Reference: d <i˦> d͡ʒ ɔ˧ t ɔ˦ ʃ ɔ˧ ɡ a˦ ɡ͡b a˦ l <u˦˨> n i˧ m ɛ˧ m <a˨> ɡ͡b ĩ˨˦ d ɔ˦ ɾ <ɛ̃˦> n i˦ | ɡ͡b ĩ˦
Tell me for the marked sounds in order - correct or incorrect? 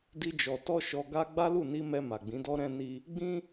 correct, correct, correct, correct

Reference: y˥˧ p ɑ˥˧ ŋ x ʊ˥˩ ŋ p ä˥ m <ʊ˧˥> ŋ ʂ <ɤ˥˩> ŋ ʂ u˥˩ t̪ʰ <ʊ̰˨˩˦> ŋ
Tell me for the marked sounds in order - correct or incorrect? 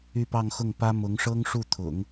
correct, incorrect: ɤ˥, correct

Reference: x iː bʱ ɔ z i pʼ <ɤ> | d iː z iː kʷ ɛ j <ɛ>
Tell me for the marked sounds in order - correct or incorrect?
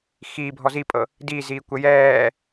correct, incorrect: ɛː

